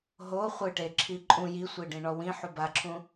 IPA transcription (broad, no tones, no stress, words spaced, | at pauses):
ɦo χʷɨʈe ǁʰiǃʼũ ji sʷiɖĩɳɔwĩ ħubaǁʰũ